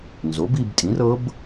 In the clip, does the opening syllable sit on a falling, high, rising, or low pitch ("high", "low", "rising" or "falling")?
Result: rising